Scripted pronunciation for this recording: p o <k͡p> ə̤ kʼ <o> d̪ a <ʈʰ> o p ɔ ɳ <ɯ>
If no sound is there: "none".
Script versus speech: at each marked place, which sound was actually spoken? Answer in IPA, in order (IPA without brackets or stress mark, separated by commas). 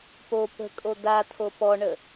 p, o, t̪ʰ, ə